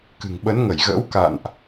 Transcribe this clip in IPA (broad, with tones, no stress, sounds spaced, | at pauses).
k ɨ̤˨˩ ŋ ɓ ə˨˦ n ŋ ə˧˩ j ɣ ə̰ː˧˥ w k a̰˧˨ n ʔ